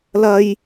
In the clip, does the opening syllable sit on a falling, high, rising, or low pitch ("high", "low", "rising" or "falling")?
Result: high